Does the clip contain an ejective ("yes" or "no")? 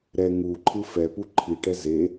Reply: no